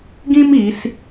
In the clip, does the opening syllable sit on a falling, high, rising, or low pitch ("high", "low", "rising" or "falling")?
high